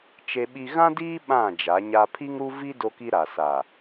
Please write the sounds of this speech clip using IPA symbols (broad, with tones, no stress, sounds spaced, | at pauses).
t͡ʃ e˦ ɓ i˦ ɣ ã˦ d iː˦ ɓ ã˦˨ d͡ʒ a˨˦ ɲ a˦ pʰ i˦ ŋ ɾ u˦ v i˦ d o˦ k i˦ ɾ a˨ s a˨